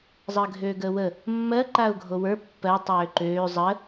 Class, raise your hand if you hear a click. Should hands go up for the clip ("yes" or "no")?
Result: yes